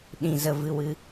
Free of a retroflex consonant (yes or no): yes